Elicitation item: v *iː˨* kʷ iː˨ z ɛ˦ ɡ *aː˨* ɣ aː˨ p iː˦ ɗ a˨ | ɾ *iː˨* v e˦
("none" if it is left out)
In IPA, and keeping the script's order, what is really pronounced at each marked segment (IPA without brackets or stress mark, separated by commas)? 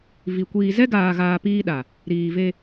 i˨, aː˨, iː˨